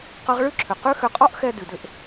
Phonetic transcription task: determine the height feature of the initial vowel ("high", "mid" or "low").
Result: mid